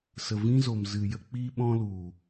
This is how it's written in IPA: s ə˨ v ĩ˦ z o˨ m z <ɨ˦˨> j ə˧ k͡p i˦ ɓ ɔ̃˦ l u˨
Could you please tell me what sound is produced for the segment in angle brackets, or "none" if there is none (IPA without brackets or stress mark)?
ɨ˨